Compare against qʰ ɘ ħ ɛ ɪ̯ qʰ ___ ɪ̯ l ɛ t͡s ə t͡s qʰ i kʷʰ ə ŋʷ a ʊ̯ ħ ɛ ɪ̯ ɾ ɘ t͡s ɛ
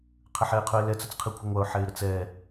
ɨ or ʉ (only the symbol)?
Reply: ʉ